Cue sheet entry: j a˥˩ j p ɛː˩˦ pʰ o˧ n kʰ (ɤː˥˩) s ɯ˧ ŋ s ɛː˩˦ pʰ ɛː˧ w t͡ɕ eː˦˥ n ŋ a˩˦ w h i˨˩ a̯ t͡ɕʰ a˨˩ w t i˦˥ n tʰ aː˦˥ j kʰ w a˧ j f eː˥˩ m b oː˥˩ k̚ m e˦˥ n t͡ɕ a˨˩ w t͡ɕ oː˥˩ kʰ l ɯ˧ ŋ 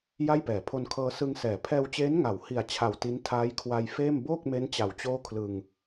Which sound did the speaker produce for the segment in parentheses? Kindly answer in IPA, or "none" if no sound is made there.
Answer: ɤː˧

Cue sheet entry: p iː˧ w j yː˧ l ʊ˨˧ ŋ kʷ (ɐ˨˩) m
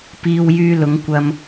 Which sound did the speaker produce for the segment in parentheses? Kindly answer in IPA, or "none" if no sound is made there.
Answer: ɐ˧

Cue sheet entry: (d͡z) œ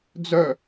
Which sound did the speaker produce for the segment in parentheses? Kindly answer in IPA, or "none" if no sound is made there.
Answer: d͡z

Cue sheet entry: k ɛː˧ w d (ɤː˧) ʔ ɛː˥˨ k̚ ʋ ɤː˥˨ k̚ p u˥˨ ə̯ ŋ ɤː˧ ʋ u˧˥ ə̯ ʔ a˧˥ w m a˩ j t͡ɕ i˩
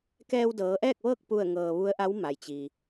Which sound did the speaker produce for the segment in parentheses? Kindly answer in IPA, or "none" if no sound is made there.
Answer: ɤː˩˧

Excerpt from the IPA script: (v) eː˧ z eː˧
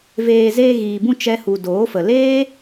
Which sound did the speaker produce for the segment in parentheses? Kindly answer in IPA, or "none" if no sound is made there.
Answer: v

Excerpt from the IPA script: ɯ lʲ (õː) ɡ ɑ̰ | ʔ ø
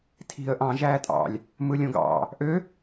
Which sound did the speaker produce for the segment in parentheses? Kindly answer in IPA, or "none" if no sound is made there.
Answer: õ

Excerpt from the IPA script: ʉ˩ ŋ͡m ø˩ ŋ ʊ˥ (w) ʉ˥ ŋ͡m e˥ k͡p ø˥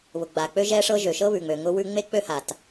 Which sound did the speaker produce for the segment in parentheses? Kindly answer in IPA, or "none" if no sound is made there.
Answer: w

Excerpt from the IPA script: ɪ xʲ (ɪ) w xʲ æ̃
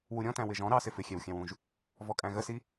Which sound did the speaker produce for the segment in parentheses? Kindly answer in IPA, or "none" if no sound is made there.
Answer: ɛ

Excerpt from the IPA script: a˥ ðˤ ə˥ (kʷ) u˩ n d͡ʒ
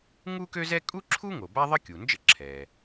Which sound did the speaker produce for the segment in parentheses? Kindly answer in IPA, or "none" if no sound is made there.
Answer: kʲ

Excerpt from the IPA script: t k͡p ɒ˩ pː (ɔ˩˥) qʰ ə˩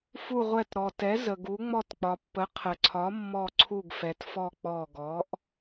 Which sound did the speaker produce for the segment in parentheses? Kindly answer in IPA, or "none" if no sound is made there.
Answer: ə˩˥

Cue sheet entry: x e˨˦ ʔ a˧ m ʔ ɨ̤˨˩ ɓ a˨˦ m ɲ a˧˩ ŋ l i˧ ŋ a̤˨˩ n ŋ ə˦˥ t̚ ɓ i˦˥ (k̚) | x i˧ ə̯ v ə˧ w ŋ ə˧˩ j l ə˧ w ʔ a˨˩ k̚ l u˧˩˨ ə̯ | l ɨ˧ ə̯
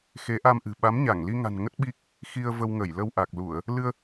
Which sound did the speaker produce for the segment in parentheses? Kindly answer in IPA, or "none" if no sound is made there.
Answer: k̚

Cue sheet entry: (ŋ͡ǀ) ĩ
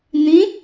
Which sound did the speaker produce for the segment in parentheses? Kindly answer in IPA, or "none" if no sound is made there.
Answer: n̪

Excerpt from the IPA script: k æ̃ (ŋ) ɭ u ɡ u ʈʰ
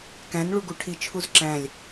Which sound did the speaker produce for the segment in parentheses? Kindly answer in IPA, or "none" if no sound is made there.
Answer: n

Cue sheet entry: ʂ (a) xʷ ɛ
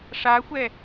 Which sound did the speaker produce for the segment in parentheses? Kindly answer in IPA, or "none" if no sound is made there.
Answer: a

